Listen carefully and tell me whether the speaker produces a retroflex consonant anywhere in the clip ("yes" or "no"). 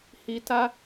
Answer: no